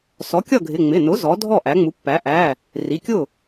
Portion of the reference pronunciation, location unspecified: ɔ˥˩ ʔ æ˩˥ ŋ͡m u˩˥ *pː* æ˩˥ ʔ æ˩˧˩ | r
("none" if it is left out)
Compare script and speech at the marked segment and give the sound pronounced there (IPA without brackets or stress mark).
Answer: pː